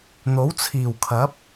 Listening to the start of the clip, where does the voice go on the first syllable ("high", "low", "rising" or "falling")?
rising